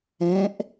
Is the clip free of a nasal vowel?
no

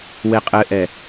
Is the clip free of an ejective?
no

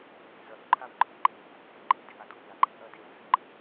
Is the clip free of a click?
no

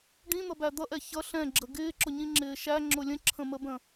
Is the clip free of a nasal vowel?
no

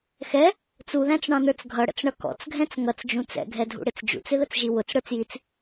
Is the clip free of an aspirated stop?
yes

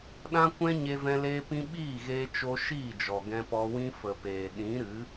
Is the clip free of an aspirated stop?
yes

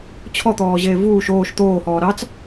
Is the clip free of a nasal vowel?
yes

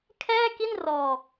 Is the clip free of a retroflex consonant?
yes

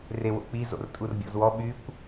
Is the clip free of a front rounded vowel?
no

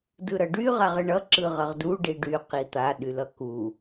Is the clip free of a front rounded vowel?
no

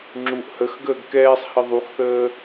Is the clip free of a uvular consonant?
yes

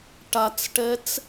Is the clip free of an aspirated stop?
yes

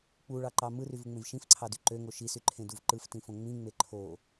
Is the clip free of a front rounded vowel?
no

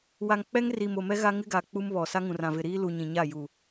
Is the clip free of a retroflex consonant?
yes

